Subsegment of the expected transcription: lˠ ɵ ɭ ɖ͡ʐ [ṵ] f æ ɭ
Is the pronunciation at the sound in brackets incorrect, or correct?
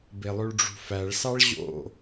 incorrect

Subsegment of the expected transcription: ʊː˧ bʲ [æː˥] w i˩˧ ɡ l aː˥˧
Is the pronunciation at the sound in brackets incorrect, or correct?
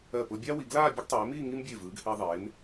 incorrect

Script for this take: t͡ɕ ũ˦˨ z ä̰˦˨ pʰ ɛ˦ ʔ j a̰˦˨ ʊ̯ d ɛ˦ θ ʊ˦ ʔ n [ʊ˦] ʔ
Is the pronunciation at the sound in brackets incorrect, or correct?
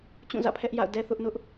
correct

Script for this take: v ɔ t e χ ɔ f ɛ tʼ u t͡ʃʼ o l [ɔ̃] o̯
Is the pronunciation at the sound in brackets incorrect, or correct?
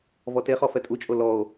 incorrect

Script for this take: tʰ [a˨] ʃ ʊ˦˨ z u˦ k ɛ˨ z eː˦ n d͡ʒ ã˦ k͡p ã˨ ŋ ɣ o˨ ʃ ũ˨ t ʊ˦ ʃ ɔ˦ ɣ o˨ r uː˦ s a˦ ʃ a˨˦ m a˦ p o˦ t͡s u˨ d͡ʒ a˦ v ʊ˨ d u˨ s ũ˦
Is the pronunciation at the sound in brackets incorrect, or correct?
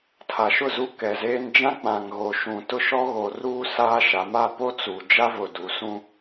correct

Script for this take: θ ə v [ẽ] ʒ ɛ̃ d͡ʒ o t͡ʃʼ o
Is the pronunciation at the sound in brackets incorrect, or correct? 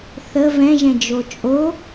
incorrect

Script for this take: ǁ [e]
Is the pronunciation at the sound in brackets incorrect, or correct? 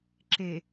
correct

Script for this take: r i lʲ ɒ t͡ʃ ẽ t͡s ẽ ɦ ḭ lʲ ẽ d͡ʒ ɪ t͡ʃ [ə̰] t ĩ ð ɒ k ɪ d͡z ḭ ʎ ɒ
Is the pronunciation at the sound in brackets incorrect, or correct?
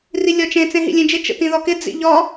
correct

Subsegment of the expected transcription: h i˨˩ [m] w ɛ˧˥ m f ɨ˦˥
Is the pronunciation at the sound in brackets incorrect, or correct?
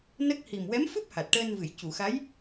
correct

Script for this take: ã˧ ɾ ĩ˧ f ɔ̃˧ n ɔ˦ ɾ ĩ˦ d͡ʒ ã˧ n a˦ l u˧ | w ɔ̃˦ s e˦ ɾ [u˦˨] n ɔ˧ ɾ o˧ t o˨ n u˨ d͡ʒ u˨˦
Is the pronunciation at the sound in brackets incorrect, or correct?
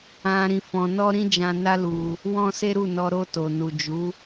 correct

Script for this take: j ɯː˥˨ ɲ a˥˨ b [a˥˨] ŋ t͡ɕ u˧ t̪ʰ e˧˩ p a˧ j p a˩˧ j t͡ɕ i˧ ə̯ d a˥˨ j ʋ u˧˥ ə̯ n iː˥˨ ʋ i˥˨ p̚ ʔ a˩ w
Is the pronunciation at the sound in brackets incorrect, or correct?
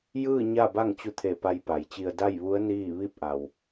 correct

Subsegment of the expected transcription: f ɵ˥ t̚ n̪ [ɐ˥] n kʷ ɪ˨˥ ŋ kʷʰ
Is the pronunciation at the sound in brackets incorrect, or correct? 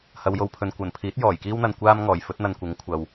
incorrect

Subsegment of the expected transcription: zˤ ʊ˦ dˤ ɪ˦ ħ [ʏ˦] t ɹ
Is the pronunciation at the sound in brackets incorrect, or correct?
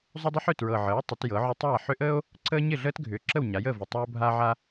incorrect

